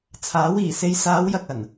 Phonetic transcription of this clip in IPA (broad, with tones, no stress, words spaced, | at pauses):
t͡sʰaː˨˥wiː˨˩ se˨˧jsaː˨˧wjɐ˨k̚ ɐ˨˩n